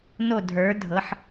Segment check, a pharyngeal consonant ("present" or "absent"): present